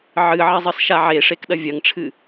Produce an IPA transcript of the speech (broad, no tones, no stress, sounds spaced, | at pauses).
ʕ ɨ ʕ ɐ zˤ ɨ s ʃ a ʕ e ʂ e k ɗ ɐ vʲ ɐ ŋ ʈ͡ʂʰ ɨ